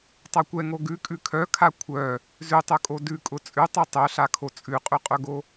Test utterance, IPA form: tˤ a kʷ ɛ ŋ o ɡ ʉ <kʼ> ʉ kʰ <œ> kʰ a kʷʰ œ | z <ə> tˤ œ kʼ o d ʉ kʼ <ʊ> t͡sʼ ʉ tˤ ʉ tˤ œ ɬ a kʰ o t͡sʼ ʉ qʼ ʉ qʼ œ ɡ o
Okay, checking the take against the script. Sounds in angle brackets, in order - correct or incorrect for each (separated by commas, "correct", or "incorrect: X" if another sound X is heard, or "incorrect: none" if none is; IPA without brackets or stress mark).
correct, correct, incorrect: ʉ, correct